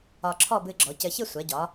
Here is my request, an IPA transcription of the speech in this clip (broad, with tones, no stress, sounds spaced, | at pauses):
ɒ˧ ǁʰ ɔ˥˧ b ɨ˧ ɡ͡ǁ ɔ˩˧ c ɘ˧ ç ɨ˥˧ sʷ ɛ˩˧ ɟ ɒ˩˧